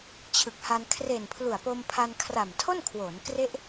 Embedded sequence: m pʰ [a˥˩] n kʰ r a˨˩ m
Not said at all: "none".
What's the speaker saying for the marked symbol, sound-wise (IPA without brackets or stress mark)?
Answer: a˧